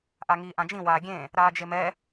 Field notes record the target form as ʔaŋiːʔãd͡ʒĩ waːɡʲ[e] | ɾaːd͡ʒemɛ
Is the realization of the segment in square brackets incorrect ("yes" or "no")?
yes